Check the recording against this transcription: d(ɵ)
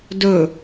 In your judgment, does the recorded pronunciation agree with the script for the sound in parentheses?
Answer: yes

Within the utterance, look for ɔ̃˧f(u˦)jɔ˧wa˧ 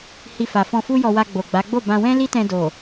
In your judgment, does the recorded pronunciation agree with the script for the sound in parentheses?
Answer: yes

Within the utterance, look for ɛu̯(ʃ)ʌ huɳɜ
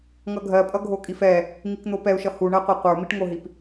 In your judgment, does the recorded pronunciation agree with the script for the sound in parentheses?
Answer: yes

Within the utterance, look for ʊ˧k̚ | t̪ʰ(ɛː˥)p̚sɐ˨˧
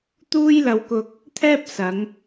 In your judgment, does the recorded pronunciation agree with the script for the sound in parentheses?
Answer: yes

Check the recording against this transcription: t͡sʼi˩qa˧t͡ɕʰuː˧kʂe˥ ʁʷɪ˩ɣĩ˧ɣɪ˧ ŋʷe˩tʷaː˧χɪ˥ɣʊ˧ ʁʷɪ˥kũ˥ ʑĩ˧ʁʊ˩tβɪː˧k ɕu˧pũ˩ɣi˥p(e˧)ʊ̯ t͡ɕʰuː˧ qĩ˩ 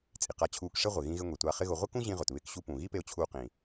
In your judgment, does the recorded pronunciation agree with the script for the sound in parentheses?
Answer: yes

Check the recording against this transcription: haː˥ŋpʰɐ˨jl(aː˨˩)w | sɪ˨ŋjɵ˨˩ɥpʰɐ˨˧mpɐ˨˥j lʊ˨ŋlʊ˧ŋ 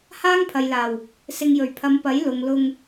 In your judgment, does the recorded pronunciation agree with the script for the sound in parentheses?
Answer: yes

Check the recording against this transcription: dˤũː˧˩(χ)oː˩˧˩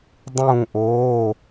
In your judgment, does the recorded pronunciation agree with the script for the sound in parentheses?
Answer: no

